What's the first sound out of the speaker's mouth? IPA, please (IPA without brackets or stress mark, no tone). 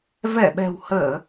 v